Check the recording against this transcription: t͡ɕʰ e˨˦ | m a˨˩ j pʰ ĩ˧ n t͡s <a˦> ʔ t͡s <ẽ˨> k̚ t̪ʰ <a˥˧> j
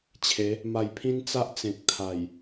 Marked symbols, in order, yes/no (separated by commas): yes, yes, no